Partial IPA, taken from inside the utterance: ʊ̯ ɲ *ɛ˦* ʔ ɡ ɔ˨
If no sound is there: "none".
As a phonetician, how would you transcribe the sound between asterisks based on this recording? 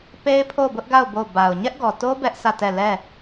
ɛ˦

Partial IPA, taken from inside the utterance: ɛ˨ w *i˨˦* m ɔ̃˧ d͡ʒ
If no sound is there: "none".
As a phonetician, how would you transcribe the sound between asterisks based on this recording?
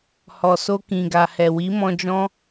i˨˦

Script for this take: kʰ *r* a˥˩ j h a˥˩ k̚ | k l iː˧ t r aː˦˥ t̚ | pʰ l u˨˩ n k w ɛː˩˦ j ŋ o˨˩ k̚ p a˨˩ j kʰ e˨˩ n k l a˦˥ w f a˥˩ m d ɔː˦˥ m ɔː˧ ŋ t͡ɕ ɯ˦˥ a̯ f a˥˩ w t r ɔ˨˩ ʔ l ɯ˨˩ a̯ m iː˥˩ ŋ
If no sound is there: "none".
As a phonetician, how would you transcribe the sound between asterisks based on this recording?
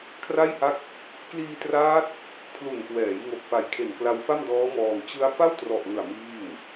r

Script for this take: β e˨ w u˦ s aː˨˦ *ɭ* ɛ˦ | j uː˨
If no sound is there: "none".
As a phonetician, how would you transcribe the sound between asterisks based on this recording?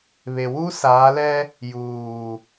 l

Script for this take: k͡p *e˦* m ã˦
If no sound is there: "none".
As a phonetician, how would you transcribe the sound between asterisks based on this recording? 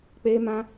e˦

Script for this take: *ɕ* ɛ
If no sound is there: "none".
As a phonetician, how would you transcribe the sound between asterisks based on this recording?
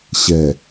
ɕ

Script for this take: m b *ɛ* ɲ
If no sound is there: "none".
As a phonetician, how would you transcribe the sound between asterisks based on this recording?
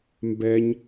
ɛ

